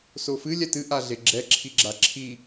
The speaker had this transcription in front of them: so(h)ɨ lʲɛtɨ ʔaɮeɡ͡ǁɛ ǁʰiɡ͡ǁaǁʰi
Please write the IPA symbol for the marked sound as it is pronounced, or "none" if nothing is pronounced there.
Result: f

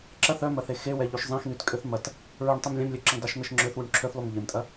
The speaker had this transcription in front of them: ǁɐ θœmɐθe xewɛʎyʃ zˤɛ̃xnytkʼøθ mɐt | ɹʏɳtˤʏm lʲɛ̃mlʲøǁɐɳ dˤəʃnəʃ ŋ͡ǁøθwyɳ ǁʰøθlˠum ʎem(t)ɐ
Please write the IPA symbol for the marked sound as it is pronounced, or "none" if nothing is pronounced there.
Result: tʼ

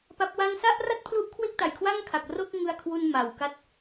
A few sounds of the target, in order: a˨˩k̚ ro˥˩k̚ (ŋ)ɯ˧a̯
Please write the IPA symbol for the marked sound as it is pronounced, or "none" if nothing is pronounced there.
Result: ŋ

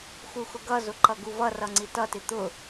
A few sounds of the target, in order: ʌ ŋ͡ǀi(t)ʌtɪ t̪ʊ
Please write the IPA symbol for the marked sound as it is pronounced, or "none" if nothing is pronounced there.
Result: t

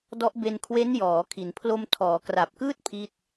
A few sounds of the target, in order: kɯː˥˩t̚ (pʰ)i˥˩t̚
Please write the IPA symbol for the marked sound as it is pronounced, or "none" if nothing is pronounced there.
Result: pʰ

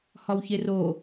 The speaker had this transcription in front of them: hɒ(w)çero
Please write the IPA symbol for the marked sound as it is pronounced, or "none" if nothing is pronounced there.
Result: w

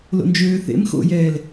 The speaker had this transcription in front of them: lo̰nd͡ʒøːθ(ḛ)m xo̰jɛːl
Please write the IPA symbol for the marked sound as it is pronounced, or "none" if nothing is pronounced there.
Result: ḛ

